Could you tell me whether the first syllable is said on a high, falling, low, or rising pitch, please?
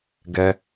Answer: high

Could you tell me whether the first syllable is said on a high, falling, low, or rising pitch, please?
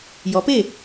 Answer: rising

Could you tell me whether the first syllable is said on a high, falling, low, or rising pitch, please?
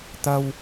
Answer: high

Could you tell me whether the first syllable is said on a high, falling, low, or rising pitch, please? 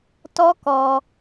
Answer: high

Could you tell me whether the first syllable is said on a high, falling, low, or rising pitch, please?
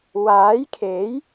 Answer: rising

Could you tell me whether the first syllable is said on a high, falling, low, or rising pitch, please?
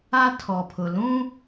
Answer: high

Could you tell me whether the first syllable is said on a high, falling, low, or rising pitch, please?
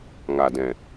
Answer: low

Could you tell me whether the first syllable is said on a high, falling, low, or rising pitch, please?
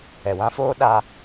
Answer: low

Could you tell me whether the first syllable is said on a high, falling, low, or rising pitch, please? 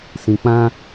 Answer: low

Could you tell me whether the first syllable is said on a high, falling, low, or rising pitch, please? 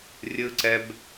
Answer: high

